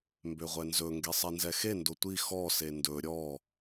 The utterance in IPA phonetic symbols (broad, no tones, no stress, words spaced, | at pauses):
mbøʁʷɛnzɵ ŋɡesˤɛnzɛxe ndotʷi xɔ sendɵ ɾʲɔ